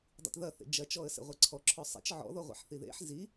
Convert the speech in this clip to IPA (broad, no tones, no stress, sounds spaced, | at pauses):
dˤ ḭ t ð ɐ θ ḛ d͡ʒ ɐ t͡ʃ ɔ ə̯ s ḛ ʁʷ e ǀʰ ɔ ǁʰ ɔ sˤ ḛ t͡ʃ ʕ ɔ̰ ð ɔ ʁʷ ḛ ħ θ i ð ḛ ħ z i